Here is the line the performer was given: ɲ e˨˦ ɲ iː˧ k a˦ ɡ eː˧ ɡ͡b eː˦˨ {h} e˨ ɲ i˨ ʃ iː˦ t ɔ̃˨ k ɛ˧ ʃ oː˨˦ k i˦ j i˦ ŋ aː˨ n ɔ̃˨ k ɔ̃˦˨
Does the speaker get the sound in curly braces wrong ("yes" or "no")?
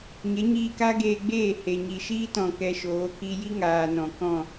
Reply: no